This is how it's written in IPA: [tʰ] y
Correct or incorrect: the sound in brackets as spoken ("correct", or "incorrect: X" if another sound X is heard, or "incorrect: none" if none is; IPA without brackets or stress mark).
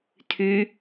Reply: correct